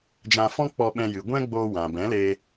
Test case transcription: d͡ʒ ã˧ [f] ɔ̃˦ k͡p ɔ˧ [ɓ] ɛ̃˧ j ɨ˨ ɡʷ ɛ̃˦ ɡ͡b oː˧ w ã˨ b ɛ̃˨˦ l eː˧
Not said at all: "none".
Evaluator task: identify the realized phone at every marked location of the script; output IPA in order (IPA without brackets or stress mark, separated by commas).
f, ɓ